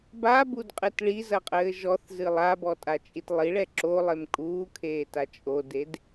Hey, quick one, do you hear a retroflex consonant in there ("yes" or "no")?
yes